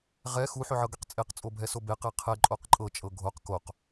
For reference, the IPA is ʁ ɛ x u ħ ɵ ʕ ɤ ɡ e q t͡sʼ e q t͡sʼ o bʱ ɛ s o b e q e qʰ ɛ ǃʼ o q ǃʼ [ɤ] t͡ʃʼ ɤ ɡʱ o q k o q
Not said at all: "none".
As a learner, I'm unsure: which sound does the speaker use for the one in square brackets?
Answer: ɤ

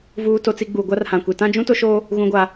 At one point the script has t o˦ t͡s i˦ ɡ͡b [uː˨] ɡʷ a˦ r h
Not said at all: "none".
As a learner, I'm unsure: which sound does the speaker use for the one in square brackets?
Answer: uː˨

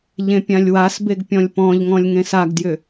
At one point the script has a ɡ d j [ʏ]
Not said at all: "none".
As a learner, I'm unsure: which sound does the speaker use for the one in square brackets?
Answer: ʏ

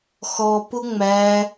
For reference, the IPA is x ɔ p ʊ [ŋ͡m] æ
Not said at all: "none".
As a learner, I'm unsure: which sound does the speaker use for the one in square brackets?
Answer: ŋ͡m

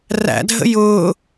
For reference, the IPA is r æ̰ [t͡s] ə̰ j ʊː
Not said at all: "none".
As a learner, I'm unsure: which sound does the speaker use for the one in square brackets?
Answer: dʱ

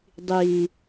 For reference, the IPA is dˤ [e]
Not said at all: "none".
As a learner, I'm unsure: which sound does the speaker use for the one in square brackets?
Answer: i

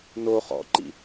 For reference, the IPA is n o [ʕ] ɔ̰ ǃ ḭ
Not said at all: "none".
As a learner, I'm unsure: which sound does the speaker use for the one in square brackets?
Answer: χ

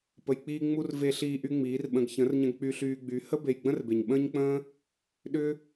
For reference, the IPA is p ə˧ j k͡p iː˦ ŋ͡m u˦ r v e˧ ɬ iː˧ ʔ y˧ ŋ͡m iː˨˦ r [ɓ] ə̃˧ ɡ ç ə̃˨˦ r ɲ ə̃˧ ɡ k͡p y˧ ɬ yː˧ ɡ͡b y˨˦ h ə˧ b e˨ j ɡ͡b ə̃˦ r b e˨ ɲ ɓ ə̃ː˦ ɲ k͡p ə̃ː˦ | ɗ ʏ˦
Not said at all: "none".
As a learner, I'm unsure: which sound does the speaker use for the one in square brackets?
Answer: ɓ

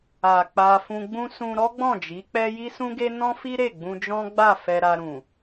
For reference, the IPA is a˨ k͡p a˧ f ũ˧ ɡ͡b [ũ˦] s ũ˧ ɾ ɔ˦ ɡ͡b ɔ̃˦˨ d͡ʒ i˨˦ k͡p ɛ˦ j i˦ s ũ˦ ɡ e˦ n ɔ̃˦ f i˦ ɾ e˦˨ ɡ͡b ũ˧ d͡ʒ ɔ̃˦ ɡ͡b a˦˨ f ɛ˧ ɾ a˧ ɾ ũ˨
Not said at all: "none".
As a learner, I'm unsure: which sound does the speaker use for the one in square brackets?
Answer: ũ˦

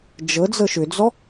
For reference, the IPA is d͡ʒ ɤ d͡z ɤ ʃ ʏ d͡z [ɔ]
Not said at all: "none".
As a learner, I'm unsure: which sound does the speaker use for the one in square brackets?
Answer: ɔ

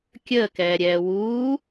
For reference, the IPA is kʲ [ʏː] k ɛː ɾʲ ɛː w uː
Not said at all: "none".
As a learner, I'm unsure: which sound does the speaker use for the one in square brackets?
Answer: əː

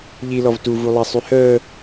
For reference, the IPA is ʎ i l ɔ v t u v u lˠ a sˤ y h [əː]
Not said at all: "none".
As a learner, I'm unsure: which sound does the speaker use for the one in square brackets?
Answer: əː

